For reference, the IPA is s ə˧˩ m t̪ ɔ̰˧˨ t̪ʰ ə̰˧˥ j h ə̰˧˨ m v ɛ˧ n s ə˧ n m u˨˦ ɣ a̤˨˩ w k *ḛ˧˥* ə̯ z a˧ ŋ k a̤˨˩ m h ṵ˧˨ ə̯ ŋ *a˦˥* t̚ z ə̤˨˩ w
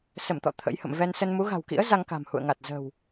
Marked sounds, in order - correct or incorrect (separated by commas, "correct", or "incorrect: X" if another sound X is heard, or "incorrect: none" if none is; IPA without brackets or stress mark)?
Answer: incorrect: ḭ˧˥, incorrect: a˨˩